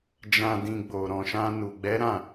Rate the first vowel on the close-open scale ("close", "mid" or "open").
open